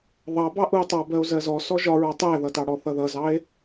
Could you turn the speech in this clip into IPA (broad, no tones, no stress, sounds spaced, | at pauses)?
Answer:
ðˤ ɑ b ɑ ʔ u o̯ tˤ ɑ b ɜ o̯ z ɜ z ɔ s ɔ ʒ ɒ ɹ ɑ tˤ æ ð ʌ t ɑ ɽ ɔ θ ʌ ð ʌ z ɑ e̯